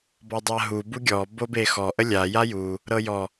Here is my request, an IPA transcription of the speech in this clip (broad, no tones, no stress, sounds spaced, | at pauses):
b ɔ dˤ a ɦ u b u ɡʲ ɔ b o b e x ɔ ʔ ə lʲ a j a j u | ɾ ɤ j ɔ